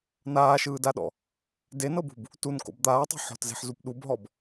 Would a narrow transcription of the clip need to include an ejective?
no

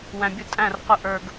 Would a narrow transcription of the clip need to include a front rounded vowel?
no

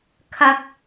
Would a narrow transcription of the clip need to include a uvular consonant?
no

